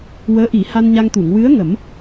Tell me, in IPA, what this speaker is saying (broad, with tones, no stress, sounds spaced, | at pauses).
w əː˧˥ ʔ i˨˩˦ h a˧ n ɲ a˧ ŋ t̪ u˨˩˨ ŋ w ɨ˧˥ ə̯ ŋ ə˨˩˦ m